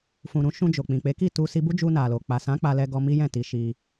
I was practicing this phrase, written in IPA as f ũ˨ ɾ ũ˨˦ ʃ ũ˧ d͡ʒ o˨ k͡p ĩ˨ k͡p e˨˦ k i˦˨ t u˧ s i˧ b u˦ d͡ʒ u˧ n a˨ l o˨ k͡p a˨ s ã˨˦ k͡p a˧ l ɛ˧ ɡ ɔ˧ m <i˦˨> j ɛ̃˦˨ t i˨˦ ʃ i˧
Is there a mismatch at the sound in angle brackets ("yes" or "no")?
yes